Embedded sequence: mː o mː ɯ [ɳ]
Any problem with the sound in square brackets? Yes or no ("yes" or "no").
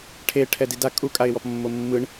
no